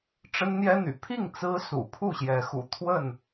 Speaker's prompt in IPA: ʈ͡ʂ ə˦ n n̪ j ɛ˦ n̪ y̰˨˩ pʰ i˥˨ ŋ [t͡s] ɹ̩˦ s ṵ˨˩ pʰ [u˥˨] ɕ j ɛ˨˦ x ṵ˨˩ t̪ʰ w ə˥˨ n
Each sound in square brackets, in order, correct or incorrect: correct, correct

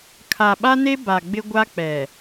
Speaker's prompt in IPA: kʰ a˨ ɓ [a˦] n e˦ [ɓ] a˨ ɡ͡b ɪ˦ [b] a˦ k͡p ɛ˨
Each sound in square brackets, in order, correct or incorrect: correct, incorrect, incorrect

